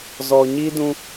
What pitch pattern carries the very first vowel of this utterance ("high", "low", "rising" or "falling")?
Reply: low